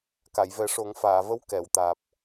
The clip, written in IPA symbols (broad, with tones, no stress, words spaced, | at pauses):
ka˨˩˨jvɛ˨˩˦ʂo˨˩˦ŋ faː˨˩˨və˧˥w kɛ˨˩˨wt̪aː˨˩p̚